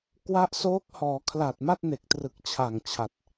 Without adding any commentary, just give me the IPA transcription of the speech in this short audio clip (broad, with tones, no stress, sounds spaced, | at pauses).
k w a˦˥ ʔ s oː˦˥ k̚ h ɔː˩˦ kʰ l a˨˩ t̚ m a˥˩ t̚ n e˨˩ k̚ t r ɯ˨˩ k̚ t͡ɕʰ a˨˩ ŋ t͡ɕʰ a˨˩ t̚